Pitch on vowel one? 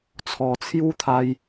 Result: low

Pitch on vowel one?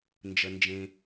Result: low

